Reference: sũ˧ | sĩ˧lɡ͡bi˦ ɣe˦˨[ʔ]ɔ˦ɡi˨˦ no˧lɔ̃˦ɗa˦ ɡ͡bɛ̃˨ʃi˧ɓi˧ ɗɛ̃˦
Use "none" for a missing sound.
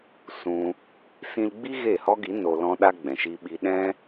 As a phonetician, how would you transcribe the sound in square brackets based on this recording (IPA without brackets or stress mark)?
h